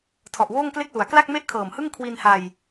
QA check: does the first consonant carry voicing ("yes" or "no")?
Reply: no